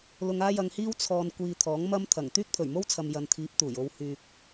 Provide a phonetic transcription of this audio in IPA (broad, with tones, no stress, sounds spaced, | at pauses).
l ʊ˧ ŋ aː˥ j ɐ˧ ŋ h iː˥ w t͡sʰ ɔː˨ n kʷ iː˨ t̪ʰ ɔː˨˥ ŋ m ɐ˥ m t̪ʰ ɐ˨˩ ŋ t̪ yː˥ k̚ t̪ʰ ɵ˨˩ ɥ m o˥ w t͡sʰ ɐ˨ m j ɐ˨ n t̪ʰ iː˨˥ p̚ t̪ uː˨˩ j o˧ w h yː˨ k̚